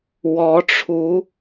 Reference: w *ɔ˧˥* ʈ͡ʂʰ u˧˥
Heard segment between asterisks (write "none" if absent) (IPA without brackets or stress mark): ɔ˧˥